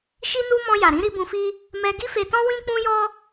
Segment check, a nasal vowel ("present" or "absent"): present